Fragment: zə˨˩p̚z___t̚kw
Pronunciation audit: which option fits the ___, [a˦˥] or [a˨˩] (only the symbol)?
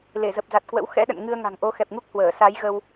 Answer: a˨˩